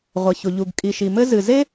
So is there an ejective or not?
yes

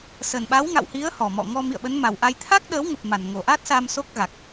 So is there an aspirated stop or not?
yes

